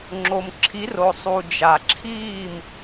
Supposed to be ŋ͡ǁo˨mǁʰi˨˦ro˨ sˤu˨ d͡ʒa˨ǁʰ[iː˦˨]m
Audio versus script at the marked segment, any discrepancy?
no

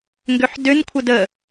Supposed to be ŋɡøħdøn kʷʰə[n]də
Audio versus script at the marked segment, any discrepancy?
yes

